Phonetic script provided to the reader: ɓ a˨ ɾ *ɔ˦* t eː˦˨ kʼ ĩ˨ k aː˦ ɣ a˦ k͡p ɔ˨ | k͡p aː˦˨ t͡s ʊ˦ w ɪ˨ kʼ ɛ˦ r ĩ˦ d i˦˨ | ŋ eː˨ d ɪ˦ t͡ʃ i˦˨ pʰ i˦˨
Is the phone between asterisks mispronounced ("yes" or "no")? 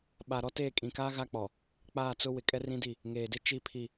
no